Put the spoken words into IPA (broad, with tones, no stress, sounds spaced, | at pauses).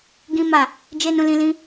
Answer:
ɡ ĩ˦ m a˦˨ | d͡ʒ e˦ n ũ˦ l ĩ˦ l ĩ˦